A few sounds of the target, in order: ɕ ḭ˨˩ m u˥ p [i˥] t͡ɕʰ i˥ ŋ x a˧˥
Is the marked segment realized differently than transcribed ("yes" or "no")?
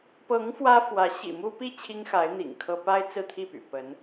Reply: yes